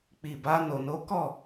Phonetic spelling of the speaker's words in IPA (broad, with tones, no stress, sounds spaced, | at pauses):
k͡p i˨ b a˧ n o˨ n o˨˦ k ɔ˦˨